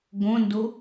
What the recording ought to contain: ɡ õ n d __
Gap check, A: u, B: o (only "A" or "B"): B